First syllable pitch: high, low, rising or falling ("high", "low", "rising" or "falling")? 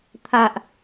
low